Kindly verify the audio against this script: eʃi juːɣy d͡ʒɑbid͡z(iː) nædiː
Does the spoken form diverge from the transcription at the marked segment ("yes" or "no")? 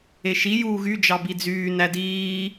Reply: yes